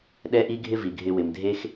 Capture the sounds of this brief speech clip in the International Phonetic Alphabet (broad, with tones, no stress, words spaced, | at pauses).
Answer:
ɗɛ˦ʔi˦ɡʱɪ˦ vi˨ɡʱɪ˧wɪ˨mdʱe˦x